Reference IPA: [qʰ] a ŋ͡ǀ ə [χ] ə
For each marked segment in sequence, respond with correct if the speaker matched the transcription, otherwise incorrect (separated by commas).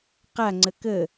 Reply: incorrect, incorrect